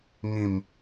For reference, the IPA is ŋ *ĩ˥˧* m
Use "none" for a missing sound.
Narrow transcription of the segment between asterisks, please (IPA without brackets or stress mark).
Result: ĩ˥˧